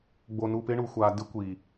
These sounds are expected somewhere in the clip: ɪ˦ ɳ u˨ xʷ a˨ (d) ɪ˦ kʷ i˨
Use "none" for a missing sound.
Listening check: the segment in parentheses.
d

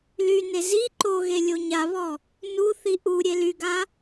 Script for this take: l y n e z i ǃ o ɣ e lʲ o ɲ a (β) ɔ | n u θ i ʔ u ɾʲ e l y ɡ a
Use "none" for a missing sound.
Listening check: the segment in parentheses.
β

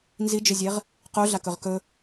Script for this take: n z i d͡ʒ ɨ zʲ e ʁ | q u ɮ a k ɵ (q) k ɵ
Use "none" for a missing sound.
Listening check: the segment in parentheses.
ʁ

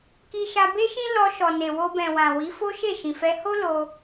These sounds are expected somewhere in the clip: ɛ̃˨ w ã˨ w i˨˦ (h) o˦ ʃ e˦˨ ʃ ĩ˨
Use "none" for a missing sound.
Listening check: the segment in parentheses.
f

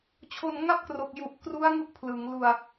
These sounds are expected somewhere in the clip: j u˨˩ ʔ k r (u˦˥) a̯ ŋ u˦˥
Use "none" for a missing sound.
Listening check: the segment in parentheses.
u˦˥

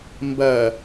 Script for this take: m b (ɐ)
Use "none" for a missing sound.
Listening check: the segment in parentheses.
ɐ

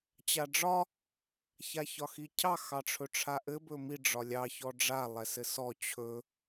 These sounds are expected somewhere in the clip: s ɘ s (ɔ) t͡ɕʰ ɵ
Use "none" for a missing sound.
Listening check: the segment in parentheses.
ɔ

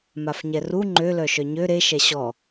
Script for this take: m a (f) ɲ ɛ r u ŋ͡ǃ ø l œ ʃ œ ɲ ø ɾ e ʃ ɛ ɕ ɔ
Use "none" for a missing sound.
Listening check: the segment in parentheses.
f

